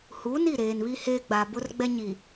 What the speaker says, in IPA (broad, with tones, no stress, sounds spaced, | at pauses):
h uː˨˦ n i˦˨ ɾ eː˨ n β i˦ h eː˦ ɡ͡b a˨ b ʊ˦ r ɡ͡b ɛ˦ ɲ i˨